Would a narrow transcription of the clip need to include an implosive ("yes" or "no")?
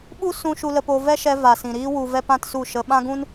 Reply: yes